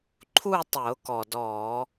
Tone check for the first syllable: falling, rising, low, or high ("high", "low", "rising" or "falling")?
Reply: falling